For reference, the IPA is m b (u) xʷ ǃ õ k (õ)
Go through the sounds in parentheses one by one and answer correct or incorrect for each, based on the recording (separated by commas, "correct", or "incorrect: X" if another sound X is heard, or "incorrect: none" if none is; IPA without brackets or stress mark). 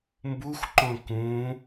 correct, incorrect: ũ